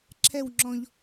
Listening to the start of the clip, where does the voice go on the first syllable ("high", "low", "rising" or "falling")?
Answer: falling